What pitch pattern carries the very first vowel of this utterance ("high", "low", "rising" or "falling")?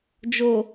low